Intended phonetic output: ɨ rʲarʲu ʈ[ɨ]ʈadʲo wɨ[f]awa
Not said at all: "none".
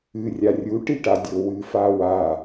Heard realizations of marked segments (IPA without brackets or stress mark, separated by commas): i, f